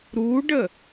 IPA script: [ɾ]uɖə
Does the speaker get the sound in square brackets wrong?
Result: no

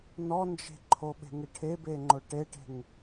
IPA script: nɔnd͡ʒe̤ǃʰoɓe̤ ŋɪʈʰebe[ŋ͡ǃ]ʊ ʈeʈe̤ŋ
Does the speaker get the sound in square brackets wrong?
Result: no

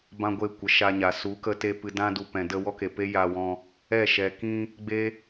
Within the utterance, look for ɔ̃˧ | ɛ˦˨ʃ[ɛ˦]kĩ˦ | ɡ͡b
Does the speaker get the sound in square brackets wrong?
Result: yes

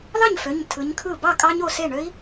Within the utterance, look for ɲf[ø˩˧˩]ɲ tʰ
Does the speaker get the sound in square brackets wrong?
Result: no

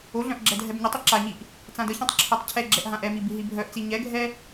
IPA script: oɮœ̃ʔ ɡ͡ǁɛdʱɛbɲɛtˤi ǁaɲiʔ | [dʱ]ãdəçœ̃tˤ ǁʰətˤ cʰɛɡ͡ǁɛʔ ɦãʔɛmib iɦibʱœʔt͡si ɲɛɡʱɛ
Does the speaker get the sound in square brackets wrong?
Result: yes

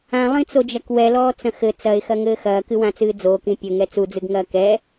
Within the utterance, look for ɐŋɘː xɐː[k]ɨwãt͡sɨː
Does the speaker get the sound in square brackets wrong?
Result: no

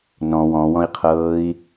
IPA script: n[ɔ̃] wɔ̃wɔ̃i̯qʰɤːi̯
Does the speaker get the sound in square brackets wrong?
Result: no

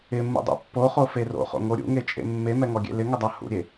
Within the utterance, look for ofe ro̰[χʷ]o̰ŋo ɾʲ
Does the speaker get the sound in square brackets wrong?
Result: yes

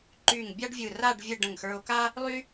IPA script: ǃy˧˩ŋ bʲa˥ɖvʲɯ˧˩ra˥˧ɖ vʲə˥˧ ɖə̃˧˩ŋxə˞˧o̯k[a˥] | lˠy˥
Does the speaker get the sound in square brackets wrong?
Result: no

